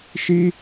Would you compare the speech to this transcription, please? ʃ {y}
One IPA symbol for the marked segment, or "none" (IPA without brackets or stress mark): i